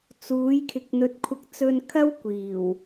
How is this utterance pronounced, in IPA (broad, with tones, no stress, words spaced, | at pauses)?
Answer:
t͡suː˨˥jkʰɪ˨˥k̚ n̪ɵ˨˥t̚kʷʰɐ˧k̚ t͡sɵ˧nkʰɐ˥w kʷiː˨˩w